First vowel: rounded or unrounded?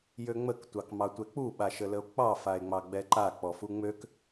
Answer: rounded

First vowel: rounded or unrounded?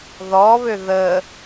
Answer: rounded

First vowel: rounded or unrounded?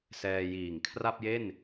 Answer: unrounded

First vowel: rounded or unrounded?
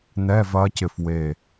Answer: unrounded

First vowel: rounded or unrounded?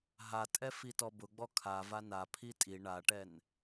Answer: unrounded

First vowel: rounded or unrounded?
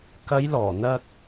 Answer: unrounded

